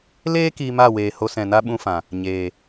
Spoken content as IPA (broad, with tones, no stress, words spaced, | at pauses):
leː˦ kiː˧ma˦˨weː˨ ho˧sɛ̃˨na˦ ɓũ˦fã˨ | ɲeː˨